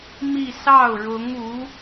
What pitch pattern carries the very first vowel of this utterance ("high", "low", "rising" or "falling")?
falling